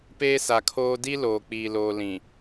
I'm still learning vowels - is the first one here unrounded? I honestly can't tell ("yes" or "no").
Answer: yes